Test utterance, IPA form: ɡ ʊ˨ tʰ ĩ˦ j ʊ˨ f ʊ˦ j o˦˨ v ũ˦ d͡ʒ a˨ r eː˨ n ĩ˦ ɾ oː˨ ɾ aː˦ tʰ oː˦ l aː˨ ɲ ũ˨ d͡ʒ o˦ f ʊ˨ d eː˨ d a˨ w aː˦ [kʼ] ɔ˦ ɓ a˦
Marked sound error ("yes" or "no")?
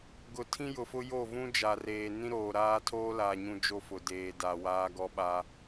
yes